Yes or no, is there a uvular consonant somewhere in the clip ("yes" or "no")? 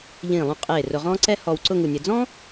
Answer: yes